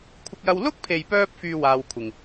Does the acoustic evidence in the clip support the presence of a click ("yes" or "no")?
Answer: no